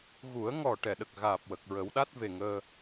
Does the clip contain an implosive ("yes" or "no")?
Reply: yes